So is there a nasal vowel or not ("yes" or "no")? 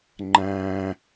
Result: yes